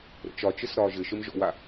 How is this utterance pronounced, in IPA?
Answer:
ɾə̰t͡ʃɒt͡ʃɘs ɾɒːʒɘʃɘm ʒɔ̰wa

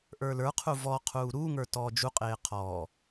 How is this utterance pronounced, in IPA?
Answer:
ʔə˞lə˞qʰu vɔqʰuː ɾuːŋə˞ tɔːd͡ʒuqʼeː qʰɔ

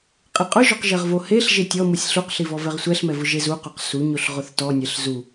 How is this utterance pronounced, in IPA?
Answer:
qʼeqʼʊʒɔq ʒɛʁvoheɬ ʒetʲɔmusʲ ɬuqɬivɔ vɛʁsʷɛɬmɛ vʊʒe zuqoq suɲoɬ ʁʊθtɔnʲɛɬ zu

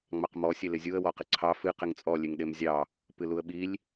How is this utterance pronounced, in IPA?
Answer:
ŋ͡mɑqmɔ sʲelɪzʲuə̯ wɔqɪǀʰɑ fɨ qɪŋt͡sʼɔ lʲeŋɗemzʲɑ | pɨluə̯ɓilʲ

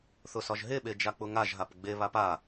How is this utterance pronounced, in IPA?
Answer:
θʊsɒʒɦe ɓed͡ʒak͡pʊŋaʒ ɦapɡ͡be βapa

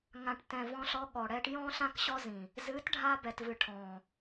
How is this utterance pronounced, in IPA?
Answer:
ŋã˨ʈtɛ̃˨ vɔ̃˧ɬɔ˧ ɠɔ˨ɽɛ˧ʈjɔ̃˦ ɬã˦kɕɔ˦zĩ˨ | zɨ˨˦tɖʱa˧bɛ˨t vɨ˨ʈʰɔ̃˨

